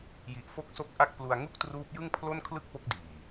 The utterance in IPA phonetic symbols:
j i˨˩ ʔ f o˦˥ k̚ s o˦˥ k̚ ʔ a˥˩ k̚ p l u˧ a̯ ŋ u˥˩ k̚ t r uː˦˥ p̚ j ɯ˥˩ ŋ pʰ l o˥˩ n kʰ l ɯ˥˩ k̚ p o˦˥ k̚ d iː˨˩

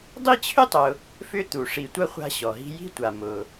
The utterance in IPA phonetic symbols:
dˤ i˥ t͡ɕʰ ʏ˥ tˤ ʊ˨ | f ʏ˦ t̪ u˩ ʂ i˨ tʷ ɐ˥ χʷ a̤˦ ɕ ɔ˩ ɦ i̤˦ j i̤˥ tʷ a˨ m ʊ˩

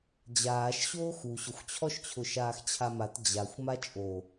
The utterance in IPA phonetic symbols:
d͡ʑ aː ʃ ɕ oː x u ɕ ʊ xʷ t͡ɕʰ ɔ ʃ t͡ɕʰ ʊ ʃ aː x t͡ɕʰ a m a t d͡ʑ a xʷ m a t͡ʃʼ o

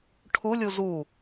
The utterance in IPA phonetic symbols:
ʈʰ u lʲ u z u

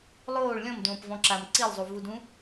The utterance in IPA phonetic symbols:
lˠ oː ɭ lʲ ɔ̃ m d õː p v ɔ̃ ǁ a m ǀ i lˠ zˤ u v u d ũ

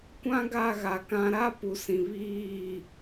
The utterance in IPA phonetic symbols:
kʷ ã˦ ɡ a˦˨ ɣ a˨ k ã˨ ɾ a˦ p u˨ s ĩ˨ β iː˦˨

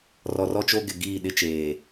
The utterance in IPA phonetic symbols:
r ɔ˨ r ɔ˦ t͡ʃ o˦ ɡ ɪ˨ ɡ iː˦˨ ɗ ɪ˦ t͡ʃ eː˨

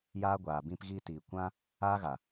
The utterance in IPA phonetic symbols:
j aː˦ ɡʷ aː˨ b ĩ˧ p ɣ iː˧ t iː˨ kʷ ã˦ | aː˦ ɣ a˨

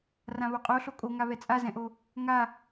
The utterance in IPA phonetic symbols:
r ã β o qʼ o ɬ o kʼ o ŋ a β ɛ t͡sʼ a z ɛ̃ ʔ o | ŋ a

